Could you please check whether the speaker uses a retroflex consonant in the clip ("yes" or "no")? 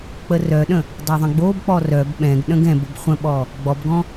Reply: no